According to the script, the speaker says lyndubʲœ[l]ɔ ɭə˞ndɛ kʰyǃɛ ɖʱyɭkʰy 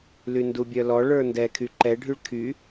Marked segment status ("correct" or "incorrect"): correct